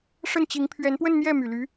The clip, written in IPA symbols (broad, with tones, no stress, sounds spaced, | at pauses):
ʂ ə˥˩ n t͡ɕ i˧˥ ŋ pʰ ɥ ɛ˧˥ n p w ə˥˧ n n̪ j ɛ˥˩ m y˨˩ l y˧˥